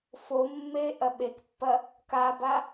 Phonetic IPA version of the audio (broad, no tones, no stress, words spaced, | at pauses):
fo mːe ʔɐɓekpːɐ | kaba